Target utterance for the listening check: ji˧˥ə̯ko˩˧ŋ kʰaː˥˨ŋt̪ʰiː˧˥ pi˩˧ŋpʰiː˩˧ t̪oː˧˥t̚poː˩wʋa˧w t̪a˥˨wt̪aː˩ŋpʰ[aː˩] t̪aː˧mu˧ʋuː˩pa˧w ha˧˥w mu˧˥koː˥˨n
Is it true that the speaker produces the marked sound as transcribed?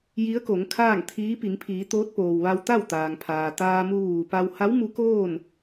yes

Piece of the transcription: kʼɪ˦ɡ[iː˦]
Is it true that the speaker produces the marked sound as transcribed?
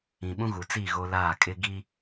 no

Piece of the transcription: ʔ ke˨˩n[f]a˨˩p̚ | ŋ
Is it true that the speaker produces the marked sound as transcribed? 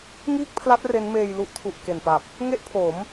no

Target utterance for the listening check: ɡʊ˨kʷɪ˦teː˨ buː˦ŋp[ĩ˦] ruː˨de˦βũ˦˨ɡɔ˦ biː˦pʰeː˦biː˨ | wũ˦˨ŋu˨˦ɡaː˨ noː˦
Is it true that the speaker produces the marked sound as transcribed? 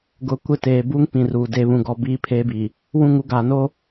no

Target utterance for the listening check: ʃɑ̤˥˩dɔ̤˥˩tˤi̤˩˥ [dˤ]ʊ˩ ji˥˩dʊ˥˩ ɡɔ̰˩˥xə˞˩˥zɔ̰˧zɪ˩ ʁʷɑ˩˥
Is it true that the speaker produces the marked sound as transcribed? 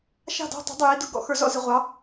yes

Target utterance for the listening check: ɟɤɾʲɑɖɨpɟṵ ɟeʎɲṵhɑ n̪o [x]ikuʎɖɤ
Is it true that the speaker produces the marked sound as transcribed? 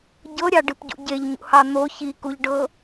no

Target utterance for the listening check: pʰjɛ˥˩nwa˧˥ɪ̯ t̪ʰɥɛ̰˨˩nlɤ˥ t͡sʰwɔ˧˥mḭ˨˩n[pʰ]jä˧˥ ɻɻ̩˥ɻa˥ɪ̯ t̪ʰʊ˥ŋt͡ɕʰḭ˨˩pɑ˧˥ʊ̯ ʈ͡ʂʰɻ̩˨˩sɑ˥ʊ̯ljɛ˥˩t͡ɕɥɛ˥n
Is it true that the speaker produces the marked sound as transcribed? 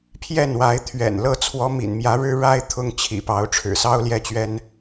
no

